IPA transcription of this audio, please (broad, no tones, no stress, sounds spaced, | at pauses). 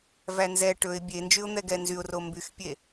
v æ n z ɛ ʈ ɵ ɪ̯ bʲ e n d͡ʒ y ʊ̯ n̪ ɛ ɡ ɛ n z y ʊ̯ r o m b y x pʲ e